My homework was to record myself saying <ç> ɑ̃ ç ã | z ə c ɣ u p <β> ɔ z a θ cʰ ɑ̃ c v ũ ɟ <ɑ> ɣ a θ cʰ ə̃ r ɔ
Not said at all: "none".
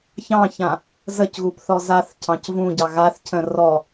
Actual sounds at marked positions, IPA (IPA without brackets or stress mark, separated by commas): ç, θ, ɑ